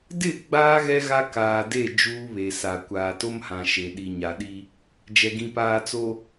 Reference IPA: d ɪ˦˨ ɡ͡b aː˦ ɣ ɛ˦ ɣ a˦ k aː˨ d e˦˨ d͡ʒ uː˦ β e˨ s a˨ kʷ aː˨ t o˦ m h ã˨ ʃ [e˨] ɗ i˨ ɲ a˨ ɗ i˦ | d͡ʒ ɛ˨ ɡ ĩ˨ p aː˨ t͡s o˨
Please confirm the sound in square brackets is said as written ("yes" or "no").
yes